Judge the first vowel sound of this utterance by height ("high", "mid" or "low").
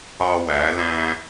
low